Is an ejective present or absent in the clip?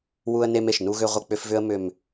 absent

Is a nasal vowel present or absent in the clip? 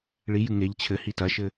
absent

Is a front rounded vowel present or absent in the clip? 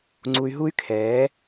present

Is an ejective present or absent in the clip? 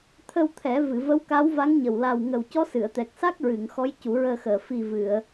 absent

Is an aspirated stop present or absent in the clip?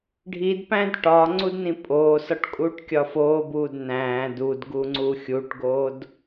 absent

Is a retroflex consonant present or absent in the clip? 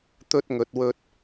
absent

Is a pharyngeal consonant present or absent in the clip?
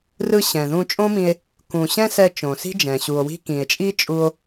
absent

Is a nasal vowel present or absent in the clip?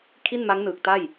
absent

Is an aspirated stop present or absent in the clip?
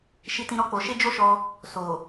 absent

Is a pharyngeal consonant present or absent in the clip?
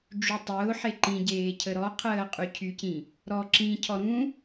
present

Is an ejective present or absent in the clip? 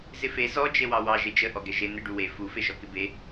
absent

